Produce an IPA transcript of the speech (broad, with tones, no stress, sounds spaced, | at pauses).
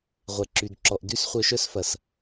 ʁʷ ɛ˨ ǁ y˨ d ǁ ɔ˨ ʔ d y˦ s χʷ œ˧ ʃ œ˦ s f ɐ˨ s